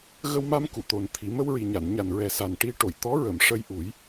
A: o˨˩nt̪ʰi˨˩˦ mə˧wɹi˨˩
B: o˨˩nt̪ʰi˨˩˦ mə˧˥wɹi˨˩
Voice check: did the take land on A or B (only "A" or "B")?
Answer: A